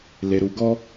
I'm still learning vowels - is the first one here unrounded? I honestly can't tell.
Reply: yes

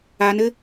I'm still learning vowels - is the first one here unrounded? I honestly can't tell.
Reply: yes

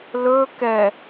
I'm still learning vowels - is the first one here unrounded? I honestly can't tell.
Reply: no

